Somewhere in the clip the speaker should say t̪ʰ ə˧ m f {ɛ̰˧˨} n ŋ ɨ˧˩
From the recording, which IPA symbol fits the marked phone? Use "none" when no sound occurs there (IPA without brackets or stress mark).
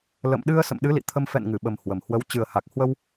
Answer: ɛ̰˧˨